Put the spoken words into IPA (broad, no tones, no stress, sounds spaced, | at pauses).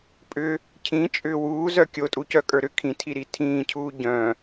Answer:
pʼ ʏ | cʰ ĩ t͡ʃʼ ʏː w uː z œ kʲ o tʼ u c œ kʼ ə˞ ɾ ʏ kʰ ĩ tʰ i ɾ i tʰ ĩː cʰ uː ɟ œ̃